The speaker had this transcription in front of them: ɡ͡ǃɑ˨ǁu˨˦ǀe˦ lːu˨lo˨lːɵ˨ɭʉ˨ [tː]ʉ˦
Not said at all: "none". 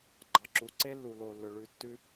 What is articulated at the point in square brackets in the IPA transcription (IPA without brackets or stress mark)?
tː